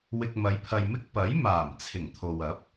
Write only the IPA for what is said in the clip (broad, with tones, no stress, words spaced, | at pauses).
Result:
wɪ˧k̚mɐ˨˧jpʰɐ˧jmɪ˥k̚ pɐ˨˥jmaː˨˩m t͡sʰɪ˨˩ŋt̪ʰo˨wɐ˨˥p̚